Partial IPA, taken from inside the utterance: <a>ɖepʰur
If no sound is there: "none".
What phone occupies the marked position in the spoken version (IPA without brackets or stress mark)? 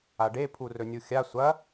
a